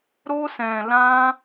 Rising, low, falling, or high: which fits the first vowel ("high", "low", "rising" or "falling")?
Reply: high